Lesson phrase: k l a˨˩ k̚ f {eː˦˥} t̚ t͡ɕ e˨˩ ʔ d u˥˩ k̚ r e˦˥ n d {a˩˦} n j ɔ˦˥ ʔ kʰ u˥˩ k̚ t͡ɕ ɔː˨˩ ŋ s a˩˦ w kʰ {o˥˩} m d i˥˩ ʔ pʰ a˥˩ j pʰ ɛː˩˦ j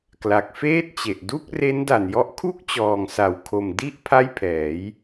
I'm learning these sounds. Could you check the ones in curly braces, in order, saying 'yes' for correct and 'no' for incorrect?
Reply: no, no, no

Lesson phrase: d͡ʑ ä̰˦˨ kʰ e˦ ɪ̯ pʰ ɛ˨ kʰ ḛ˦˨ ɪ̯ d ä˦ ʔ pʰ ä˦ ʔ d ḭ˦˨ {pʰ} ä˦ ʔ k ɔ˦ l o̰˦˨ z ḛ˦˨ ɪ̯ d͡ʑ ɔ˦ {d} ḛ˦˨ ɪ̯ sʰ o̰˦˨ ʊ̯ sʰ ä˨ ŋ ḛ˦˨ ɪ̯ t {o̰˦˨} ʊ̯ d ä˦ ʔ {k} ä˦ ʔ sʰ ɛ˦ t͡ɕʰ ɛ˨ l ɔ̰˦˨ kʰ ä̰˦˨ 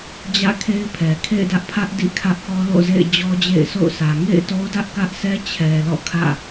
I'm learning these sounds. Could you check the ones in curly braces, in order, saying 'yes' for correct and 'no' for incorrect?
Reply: no, no, no, yes

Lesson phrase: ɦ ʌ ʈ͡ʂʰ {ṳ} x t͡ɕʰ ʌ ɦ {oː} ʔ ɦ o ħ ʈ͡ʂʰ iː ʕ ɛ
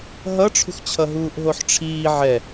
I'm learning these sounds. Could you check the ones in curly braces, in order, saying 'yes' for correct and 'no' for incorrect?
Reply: yes, no

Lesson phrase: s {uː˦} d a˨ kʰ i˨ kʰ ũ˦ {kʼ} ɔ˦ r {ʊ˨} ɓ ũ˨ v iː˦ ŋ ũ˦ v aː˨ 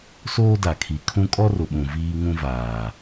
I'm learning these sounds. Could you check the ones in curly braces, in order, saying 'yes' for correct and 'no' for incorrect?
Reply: no, yes, yes

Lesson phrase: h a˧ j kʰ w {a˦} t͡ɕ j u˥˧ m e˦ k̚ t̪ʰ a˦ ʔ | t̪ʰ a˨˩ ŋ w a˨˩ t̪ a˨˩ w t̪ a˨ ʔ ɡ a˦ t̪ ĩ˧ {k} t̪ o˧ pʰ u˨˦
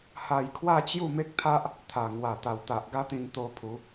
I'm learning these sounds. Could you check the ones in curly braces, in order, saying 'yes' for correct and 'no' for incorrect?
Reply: no, no

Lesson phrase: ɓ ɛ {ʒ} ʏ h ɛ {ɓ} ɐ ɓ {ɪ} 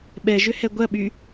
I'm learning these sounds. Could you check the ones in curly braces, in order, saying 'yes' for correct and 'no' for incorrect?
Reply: yes, no, no

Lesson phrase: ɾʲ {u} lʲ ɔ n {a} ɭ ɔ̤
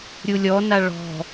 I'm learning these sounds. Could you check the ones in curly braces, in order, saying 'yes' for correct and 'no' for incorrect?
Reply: yes, yes

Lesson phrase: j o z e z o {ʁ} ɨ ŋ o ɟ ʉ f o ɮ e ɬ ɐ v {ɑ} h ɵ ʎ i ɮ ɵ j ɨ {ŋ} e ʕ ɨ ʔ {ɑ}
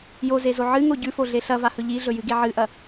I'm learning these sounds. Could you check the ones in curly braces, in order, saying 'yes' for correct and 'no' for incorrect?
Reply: no, no, no, no

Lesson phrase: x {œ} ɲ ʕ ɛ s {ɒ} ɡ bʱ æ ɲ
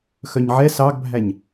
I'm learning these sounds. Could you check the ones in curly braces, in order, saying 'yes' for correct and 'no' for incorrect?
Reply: yes, no

